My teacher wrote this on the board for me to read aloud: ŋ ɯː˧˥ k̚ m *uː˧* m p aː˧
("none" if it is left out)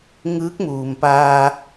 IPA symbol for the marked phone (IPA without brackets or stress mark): uː˩